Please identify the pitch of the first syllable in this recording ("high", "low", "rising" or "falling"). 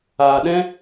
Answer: low